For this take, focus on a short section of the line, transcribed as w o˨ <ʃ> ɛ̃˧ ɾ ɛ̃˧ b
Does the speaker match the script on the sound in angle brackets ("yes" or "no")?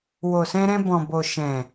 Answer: no